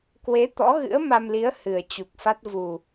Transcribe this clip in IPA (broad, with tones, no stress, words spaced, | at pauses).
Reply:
kwe˨˦t̪ɔ̰˧˥ɣɨ̰˧˥ə̯ ma˧mli˨˦ə̯ hɨ˨˩ə̯ t͡ɕu˨˩k̚fa˦˥t̚ vu˨˩